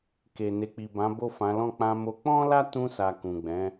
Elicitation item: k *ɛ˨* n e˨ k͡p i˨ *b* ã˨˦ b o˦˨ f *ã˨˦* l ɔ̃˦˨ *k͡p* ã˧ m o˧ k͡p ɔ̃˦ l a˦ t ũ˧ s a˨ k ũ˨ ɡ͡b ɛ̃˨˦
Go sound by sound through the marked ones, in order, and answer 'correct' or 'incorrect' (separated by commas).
incorrect, correct, correct, correct